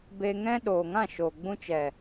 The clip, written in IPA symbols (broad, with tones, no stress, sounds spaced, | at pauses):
b e˧ ŋ ɛ̃˦ ɗ oː˨ ŋ ã˦˨ ʃ oː˨ ɡ͡b ũ˧ t͡ʃ ɛ˨